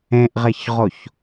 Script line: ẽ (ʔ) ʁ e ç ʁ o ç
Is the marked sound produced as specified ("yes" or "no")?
yes